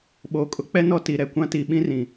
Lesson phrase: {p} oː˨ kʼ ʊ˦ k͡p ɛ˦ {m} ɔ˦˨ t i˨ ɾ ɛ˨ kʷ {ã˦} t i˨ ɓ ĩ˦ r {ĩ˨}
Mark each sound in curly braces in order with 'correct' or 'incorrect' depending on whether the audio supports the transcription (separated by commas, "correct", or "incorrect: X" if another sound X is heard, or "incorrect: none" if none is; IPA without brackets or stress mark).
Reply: incorrect: ɓ, incorrect: n, correct, correct